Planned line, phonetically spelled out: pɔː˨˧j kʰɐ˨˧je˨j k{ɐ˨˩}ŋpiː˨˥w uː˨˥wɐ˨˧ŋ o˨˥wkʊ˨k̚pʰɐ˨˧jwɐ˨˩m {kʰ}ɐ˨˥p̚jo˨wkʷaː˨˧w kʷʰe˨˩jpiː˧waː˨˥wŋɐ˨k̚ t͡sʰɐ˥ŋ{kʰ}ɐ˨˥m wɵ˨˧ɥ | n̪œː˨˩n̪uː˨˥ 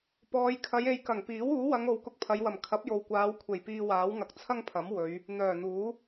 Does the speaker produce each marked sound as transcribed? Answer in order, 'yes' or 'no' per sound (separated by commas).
yes, yes, no